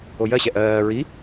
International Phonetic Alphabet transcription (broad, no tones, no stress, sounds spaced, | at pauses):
o j ɜ ɕ ɛ ʔ ɜː ɹ i